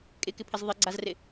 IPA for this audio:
kʼ ɪ k ɪ pʰ ɪ z ðˤ ɪ ɡ͡ǀ a z r ɪ

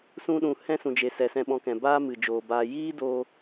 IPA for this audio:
s ũ˧ ɗ ũ˨ h ɛ̃˦ s ũ˨ d͡ʒ e˨ s ɛ˨ s ɛ̃˧ ɓ ɔ̃˧ k ɛ̃˨ b aː˦ m ɨ˨ d͡ʒ oː˨ b aː˨ j iː˦ d o˧

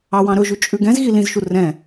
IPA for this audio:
ɑ w ɑ̃ ɾ ɵ ʒ ʉ t͡ʃʼ ʉ ɡ ɛ̃ z ɣ i l ĩ z ʃ u r ɛ̃

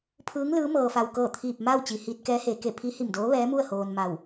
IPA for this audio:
pʰ ɯː˧˥ ŋ l ɯː˧˥ m ɤː˧ f a˧ w k ɤː˥˨ t̪ʰ iː˧˩ p̚ m aː˥˨ w t͡ɕ i˩ h iː˧ t̚ k ɛː˧˥ h eː˩˧ k e˧˩ pʰ i˧˥ h i˧˩ m d oː˧˥ ʋ ɛː˧˥ m u˥˨ ə̯ h oː˧ n m a˧˩ w

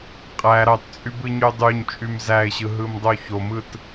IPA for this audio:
qʼ æ ɾ ɑ t t͡sʼ y b ɯ ɲ y dˤ y ɲ t͡ʃʼ y m z æ ɪ̯ ɕ ɯ ɦ ɯ m dˤ o ç o m ɯ t

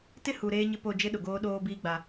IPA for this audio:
t ɪ˦ h u˨ ɾ eː˦ ɲ ɪ˦ p o˦˨ d͡ʒ ɪ˦ ɗ ʊ˨ ɡ oː˦ ɗ oː˦ b iː˦ ɡ͡b a˦

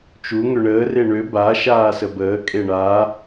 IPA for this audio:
t͡ʃ u ŋ ø ɳ əː r e ɳ ø b a ʃ aː s ə b əː kʼ e ɳ a

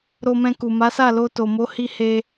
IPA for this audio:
ɾ o˧ m ɛ̃˧ k u˨ m a˨˦ s a˦˨ l o˧ t o˨ m o˨˦ h i˧ h e˧

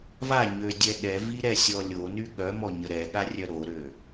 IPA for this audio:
v a ɲ ø dʲ ɛ ɗ ɛ v i ɾ ɛ sʲ ɔ lʲ o n y ɠ œ m ɔ ɲ ə ɾ ɛ ɠ a rʲ œ ɾ o ɾ ø

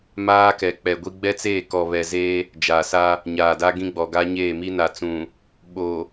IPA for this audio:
m aː˦ k ɛ˨ k͡p ɛ˨ ɡʷ i˦ ɡ͡b ɛ˦ t͡s eː˦˨ k ɔ˨ β ɛ˨ z eː˦ | d͡ʒ aː˨ s a˦ | ɲ aː˨ d a˦ ɡ ĩ˦ ɡ͡b ɔ˨ ɡ a˦ ɲ eː˦˨ m i˦ n a˨ t͡s ũ˨ | ɓ o˨

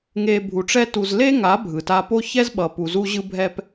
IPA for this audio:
ŋ e˨ bʱ u˨ ʈ͡ʂ ɛ˦ t u˨ z l e˦ ŋ a˨˦ bʱ ɯ˨ t a˦ p o˦ ç ɛ˦ z ɓ ʌ˨ p u˨ z u˦ ʑ ɯ˦ bʱ ɛ˦ p

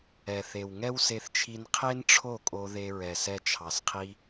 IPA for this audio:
ɛ˨ θ e˨ w ŋ ɛ˦ w s e˧ θ t͡ʃʰ i˧ n qʰ e˦ n ʈ͡ʂʰ o˦˨ kʼ o˧ ð e˧ ɹ ɛ˨ s ɛ˧ t͡ʃʰ ɑ˨ s qʰ i˧

